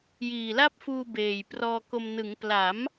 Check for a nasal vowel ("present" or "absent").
absent